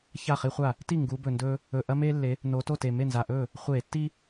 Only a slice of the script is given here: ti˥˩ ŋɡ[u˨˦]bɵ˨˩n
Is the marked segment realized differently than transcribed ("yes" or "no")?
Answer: no